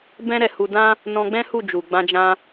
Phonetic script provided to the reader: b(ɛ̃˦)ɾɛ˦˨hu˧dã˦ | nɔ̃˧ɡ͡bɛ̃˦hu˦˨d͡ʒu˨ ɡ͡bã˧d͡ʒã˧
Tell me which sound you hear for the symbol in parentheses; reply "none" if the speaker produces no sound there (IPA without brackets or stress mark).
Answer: ɛ̃˦